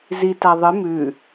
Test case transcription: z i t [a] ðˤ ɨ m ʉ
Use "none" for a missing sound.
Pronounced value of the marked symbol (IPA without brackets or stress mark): a